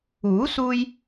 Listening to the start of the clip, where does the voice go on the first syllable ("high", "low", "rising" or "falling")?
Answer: rising